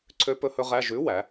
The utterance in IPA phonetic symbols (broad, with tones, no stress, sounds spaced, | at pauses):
ǀʰ ø˦˥ p ɵ˦˥ h ɵ˦˥ ʁ æ˧˥˧ ʒ ʉ˨˥ w æ˩˧